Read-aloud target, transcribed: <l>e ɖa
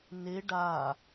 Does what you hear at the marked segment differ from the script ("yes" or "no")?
yes